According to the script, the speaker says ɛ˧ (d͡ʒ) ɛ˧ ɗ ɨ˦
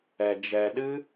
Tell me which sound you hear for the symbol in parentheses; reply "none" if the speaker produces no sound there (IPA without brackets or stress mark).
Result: d͡ʒ